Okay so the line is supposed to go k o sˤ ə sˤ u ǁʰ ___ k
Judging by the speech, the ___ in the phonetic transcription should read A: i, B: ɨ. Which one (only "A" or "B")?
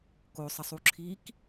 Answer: A